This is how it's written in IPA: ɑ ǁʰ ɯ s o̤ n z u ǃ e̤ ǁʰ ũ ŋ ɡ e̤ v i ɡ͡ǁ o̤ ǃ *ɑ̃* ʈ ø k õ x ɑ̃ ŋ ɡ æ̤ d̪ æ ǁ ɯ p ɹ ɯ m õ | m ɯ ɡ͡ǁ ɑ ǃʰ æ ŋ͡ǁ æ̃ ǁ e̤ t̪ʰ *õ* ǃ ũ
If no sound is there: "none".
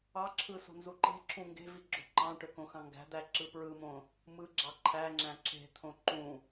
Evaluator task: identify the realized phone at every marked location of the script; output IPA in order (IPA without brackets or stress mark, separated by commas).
ɑ̃, õ